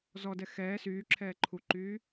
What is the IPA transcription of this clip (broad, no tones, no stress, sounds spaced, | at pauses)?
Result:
z ɔ d ɛ x ɛː s yː ǁʰ ɛː ǃʰ u ǃ yː